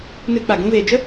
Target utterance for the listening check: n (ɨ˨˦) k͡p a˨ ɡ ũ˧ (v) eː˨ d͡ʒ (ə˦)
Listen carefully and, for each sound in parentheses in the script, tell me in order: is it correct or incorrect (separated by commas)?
incorrect, correct, correct